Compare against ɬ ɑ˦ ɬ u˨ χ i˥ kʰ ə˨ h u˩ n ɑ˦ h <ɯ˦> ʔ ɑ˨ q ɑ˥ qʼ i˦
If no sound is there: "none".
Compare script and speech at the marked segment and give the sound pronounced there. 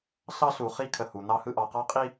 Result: ɯ˦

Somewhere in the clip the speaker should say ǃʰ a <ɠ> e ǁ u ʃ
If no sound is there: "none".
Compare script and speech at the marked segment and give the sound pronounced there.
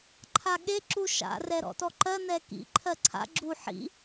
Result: ɠ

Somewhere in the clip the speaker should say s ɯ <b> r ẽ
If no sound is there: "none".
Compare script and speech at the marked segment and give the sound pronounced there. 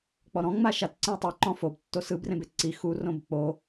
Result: b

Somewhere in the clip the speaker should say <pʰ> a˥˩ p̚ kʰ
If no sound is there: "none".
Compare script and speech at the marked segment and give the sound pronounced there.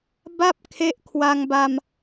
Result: b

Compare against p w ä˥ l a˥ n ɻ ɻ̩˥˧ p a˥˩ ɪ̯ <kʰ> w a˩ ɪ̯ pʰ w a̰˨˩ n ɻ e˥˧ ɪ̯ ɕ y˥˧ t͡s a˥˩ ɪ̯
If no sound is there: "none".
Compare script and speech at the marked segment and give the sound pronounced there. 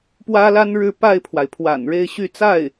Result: pʰ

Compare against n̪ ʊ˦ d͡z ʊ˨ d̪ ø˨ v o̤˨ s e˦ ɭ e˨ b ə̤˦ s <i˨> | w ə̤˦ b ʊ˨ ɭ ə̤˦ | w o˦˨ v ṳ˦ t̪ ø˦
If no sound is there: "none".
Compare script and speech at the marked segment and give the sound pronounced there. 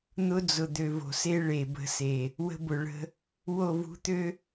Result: e˨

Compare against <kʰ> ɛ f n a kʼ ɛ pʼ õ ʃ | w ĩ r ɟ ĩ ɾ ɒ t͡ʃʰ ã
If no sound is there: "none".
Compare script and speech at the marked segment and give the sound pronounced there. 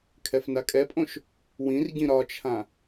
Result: kʰ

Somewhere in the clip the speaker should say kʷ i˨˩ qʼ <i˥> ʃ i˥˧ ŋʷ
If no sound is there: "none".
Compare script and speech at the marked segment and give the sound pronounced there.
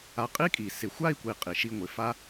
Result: i˨˩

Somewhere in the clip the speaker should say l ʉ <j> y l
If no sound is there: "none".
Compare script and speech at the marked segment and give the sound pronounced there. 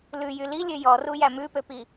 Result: j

